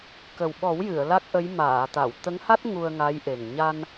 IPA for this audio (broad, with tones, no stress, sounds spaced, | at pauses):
k ə˨˩ w ɓ ɔ˨˩˦ w j ɨ˨˩˨ ə̯ l a˦˥ k̚ ʔ ə˧˥ j m aː˨˩˨ t̪ a˨˩˨ w t̪ ə˧˥ ŋ h a˦˥ t̚ ŋ u˧ ə̯ ŋ a˧˥ j ʔ e˨˩ ŋ ɲ a˧ n